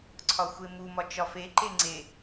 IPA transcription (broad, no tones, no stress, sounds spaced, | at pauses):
ǀʰ ɒ xʷ e m u m ɒ t͡ʃ ɒ f e ǃ e ŋ͡ǀ e